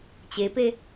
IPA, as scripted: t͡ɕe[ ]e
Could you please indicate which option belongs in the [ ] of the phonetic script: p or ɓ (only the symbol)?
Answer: p